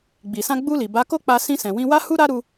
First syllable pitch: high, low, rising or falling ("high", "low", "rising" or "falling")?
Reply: low